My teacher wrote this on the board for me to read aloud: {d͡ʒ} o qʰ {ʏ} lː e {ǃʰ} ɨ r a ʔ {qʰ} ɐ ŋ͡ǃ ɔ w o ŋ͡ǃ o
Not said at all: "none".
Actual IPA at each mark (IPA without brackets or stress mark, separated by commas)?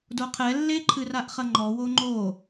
d, ɛ, ǃʰ, χ